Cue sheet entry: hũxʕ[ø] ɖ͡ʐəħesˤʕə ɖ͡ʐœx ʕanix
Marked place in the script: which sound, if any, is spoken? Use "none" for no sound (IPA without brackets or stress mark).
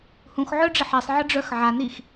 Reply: œ